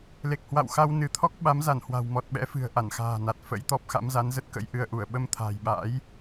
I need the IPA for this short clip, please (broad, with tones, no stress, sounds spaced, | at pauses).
l e˨˩ k̚ h w a̰˧˨ w x a˧ w n ɨ˨˦ t̪ʰ ɔ˦˥ k̚ ɓ a˨˦ m z a˧˩ n h w a̤˨˩ w m ɔ˨˩ t̚ ɓ ɛ̰˧˥ f ɨ̤˨˩ ə̯ ʔ a˧˩ n x a̤ː˨˩ n a˨˩ t̚ f ə̰˧˥ j t̪ ɔ˦˥ p̚ x a̰˧˥ m z a˨˦ n z ə˦˥ t̚ k ə̰˧˥ j ʔ ɨ˧ ə̯ ʔ u˧˩ ə̯ ɓ ə˧ m t̪ʰ a̤ː˨˩ j ɓ a̰ː˧˥ j